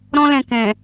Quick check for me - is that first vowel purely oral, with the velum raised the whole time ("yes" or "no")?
no